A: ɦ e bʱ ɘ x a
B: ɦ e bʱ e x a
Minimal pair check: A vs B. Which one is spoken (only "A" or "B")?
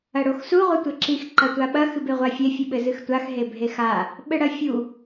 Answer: B